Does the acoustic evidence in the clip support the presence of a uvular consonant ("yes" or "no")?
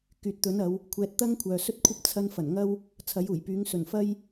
no